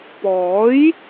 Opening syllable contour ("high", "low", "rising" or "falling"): rising